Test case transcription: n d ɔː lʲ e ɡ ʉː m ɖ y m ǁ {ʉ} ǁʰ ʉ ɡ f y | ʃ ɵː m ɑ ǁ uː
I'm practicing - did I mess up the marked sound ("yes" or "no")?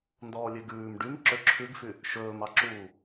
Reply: yes